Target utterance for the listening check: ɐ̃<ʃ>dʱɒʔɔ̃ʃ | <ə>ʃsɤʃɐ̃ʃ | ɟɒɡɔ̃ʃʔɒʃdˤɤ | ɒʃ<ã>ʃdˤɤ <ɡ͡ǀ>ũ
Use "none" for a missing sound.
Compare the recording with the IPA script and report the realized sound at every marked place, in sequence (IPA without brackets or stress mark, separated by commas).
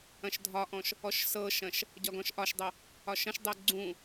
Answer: ʃ, ɔ, ɐ̃, ɡ͡ǀ